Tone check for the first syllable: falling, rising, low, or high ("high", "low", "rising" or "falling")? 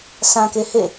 low